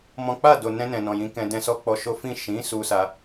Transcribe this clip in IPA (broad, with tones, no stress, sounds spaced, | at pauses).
m ɔ̃˦ k͡p a˦˨ d o˨ n ɛ̃˧ n ɛ̃˨ n ɔ̃˨ j ĩ˨˦ k ɛ̃˧ d ɛ̃˧ s ɔ˦ k͡p ɔ˧ ʃ o˦ f ĩ˦˨ ʃ ĩ˨˦ s u˦ s a˧